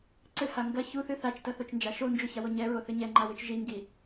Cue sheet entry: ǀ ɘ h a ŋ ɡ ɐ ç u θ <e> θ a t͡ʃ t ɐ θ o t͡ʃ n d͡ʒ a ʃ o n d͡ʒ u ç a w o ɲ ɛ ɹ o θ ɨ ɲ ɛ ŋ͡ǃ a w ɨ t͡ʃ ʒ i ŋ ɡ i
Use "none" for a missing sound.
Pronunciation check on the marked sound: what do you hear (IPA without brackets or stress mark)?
ɨ